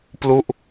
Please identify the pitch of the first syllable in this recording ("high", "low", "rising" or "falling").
falling